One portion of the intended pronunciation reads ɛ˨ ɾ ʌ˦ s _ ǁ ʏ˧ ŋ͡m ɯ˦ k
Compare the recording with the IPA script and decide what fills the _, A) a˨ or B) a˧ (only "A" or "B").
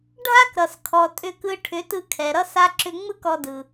B